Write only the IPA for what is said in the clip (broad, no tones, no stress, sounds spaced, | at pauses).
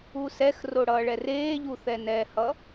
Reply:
u s ɛ x r o ɽ ʌː ɭ ɛ r eː ʎ u θ ɛ n ɛ h ʌ